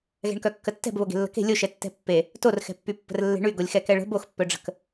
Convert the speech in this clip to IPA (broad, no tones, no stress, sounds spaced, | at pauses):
ɣ ɛ̤ ɳ k œ kː ə tː ɛ̤ b β o ɡ e̤ lː ə̤ k e̤ lʲ o ʃ ɛ tː ɛ̤ pː e | t o r x ɛ̤ pː y pː ə̤ r lː e̤ ɳ y ɡ o lʲ x ɛ k ɛ ɭ ə̤ b o x pː œ ɖ͡ʐ ə̤ k